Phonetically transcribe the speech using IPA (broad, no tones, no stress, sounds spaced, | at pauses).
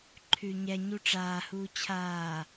ǃʰ ʉ ɲ ɛ ɲ u ʈ͡ʂ aː h uː t͡ɕʰ aː